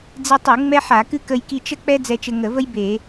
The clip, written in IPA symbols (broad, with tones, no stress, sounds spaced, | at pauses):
d͡z i˧ tˤ u˧˩˧ ŋ͡m ɛ˥ ħ a˧˩˧ k ɨ˥ k ə˧ j k i˧ t͡ʃ ə˥ k͡p ɛ˥ d͡z ɛ˧ t͡ʃ ɘ˧ ŋ ə˧˩˧ v ə˥ j b e˧˩˧